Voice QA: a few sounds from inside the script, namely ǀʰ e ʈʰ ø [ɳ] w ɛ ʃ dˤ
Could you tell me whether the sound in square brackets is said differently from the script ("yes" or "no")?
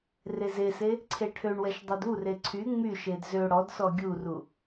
no